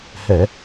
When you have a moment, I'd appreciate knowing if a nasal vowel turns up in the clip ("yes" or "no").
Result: no